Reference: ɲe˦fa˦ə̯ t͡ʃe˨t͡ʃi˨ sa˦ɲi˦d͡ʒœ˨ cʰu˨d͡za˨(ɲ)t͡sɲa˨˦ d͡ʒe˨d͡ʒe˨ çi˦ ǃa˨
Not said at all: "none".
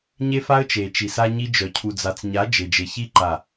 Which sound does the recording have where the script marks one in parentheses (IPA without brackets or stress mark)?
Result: none